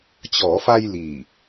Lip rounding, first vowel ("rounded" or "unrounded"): rounded